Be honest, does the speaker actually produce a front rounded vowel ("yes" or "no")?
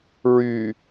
yes